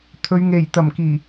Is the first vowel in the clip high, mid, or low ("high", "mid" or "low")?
mid